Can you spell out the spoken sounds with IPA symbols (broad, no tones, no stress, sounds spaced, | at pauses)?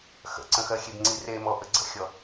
x ə̰ ǀ ə̃ x ɜ xʲ e b ŋ͡ǀ i r e m ɔ ʔ ə ɡ͡ǀ ə̰ xʲ ɔ